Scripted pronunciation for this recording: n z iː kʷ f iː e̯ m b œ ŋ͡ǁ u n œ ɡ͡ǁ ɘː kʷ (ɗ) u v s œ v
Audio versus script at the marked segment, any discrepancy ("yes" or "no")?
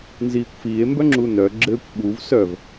yes